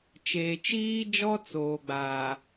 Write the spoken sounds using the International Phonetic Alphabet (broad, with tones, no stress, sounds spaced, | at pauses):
t͡ʃ eː˨ t͡ʃ iː˦ d͡ʒ ɔ˦ t͡s oː˨ ɡ͡b aː˨